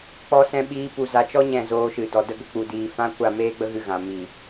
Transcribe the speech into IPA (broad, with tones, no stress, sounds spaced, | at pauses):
k͡p ɔ˧ s ɛ̃˧ ɓ iː˨˦ p u˨ z a˨ t͡ʃ ɔ˦ ɲ ɛ̃˦˨ z oː˧ ʃ ɨ˨ d ɔ˨ d ə˧ ɡ ə˨ k͡p u˨ d iː˨ f ã˦ kʷ a˦˨ m eː˦ ɡ͡b ə˦ ɣ ɨ˧ ɣ ã˨ m i˨